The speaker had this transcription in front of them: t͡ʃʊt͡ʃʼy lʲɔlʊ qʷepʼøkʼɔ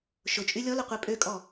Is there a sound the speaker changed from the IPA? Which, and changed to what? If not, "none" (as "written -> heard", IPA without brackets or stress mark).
t͡ʃ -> ʃ